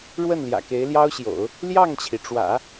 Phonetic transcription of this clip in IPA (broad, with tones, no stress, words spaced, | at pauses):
ɻwə˥˩nljä̰˨˩ke˧˥ɪ̯ ljɑ˥ʊ̯ɕjo̰˨˩˦ʊ̯ | ljɑ˥˩ŋt͡ɕʰi˩ʈ͡ʂwä̰˨˩˦